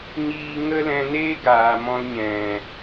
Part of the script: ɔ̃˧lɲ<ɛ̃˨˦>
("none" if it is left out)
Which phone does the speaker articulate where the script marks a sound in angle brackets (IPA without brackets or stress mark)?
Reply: ɛ̃˨